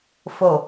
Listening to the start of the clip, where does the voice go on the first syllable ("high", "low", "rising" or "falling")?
low